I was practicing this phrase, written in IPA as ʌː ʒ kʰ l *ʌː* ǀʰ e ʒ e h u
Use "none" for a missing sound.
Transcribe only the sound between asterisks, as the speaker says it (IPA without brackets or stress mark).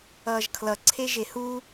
ʌ